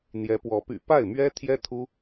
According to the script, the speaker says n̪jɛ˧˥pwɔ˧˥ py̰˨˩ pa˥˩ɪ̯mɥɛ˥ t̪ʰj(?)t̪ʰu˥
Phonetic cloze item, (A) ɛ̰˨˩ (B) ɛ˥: B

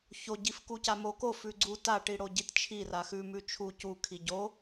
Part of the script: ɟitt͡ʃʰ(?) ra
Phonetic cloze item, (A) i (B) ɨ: A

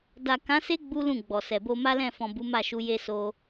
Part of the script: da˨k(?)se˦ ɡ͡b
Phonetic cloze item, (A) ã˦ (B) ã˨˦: B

